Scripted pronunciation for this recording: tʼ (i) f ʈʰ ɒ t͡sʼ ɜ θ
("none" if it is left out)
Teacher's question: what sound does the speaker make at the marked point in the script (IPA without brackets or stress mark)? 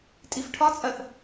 i